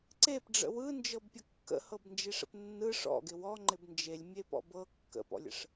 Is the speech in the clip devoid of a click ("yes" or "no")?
no